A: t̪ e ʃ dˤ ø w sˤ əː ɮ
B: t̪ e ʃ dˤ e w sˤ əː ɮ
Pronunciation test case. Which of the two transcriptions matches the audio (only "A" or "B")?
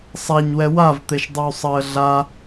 A